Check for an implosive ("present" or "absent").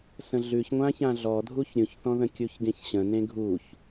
absent